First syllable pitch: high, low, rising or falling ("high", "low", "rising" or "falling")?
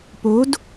rising